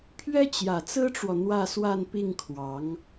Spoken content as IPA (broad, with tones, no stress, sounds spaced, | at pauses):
pʰ ɥ ɛ˥ t͡ɕ j ä˨˩ t͡s ɹ̩˥ ʈ͡ʂ w ɔ˨ n̪ w ä˥˧ s w a˥˧ n p i˥˩ ŋ kʰ w ɑ˧˥ ŋ